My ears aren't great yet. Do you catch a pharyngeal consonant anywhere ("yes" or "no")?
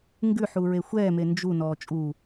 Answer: yes